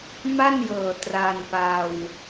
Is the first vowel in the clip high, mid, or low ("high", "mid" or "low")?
low